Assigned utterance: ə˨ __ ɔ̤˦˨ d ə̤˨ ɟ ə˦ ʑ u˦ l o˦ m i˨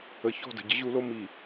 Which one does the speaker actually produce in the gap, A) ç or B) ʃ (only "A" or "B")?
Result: A